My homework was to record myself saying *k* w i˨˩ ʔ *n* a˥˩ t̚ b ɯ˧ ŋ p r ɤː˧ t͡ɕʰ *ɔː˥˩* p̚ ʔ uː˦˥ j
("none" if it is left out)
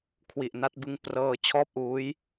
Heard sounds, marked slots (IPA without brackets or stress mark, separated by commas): kʰ, n, ɔː˥˩